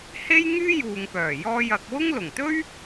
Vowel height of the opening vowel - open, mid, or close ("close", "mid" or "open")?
mid